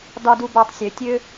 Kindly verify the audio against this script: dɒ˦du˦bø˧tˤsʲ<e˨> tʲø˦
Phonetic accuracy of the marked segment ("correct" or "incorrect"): incorrect